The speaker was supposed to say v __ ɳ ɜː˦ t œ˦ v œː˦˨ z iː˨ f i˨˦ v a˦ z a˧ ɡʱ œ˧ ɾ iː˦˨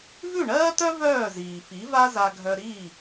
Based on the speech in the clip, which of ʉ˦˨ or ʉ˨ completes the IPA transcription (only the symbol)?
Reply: ʉ˦˨